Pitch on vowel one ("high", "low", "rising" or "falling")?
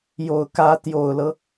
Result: low